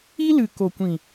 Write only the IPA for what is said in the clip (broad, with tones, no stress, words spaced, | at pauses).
i˦lɨ˨ ko˨kʷĩ˨